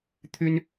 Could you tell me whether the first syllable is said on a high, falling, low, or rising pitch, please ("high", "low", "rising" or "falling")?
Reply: high